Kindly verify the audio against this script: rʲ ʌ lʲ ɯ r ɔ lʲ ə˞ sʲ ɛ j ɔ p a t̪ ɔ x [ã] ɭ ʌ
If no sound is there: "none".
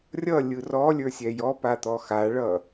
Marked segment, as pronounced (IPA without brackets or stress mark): a